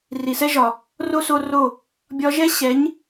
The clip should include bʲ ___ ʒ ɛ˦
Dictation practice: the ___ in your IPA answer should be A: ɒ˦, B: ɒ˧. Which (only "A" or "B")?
B